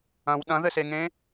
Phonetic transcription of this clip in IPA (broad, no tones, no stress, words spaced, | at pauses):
ɐ̃w ɗɐ̃ðɘseŋẽː